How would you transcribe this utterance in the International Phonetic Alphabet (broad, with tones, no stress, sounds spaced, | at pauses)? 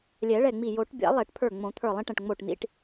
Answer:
lʲ ɛ˨˩˦ ɭ ɛ˧˩ ŋ͡m i˧˩ j o˨˩˦ ʈ bʲ a̰˨˩˦ lˠ ɛ˨˩˦ ʈ pʰ ə˞˧˩ ŋ͡m õ˨˩˦ t̪ʰ ə˞˧˩ lˠ ĩ˧ ʈ ɛ̃˧˩ ʈ ŋ͡m o˧˩ ʈ n̪ ḭ˧ ʈ